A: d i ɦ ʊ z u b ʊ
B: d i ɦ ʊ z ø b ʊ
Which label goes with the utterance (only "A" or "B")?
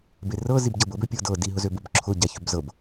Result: B